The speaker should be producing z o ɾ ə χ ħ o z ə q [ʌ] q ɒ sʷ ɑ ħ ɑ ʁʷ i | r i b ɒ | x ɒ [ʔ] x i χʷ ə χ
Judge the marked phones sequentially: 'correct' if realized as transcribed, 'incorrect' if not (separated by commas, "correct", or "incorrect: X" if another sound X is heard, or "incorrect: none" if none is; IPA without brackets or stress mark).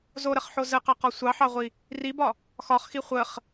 incorrect: ɑ, incorrect: χ